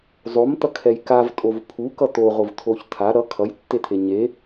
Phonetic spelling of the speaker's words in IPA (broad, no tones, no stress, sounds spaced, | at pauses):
zˤ o m t̪ ʌ kʰ ɛ j k a v tʼ o v pʰ u k ʌ t̪ o ʁ o v t̪ʰ o ç t̪ʰ a ɾ ʌ kʰ ʌ j tː e t̪ʰ e ɲ e